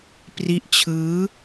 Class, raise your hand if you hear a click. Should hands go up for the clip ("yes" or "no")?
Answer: no